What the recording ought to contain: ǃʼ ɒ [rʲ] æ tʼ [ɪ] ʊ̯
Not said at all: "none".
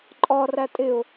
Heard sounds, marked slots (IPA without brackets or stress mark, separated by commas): r, ɪ